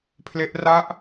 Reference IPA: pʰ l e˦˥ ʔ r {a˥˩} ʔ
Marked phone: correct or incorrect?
correct